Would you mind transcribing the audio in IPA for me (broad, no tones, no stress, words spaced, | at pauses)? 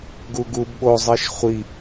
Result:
ɡuɡubɓo zˤiʃχʷi